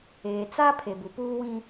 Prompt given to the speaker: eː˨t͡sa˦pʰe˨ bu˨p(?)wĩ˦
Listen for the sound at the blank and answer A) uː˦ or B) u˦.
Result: A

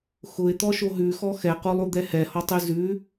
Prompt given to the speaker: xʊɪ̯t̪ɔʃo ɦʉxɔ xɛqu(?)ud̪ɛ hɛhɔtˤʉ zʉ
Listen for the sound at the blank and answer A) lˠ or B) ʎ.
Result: A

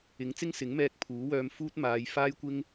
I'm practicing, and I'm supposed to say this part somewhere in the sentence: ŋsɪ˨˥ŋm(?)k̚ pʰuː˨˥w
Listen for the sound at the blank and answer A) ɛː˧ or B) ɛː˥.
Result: A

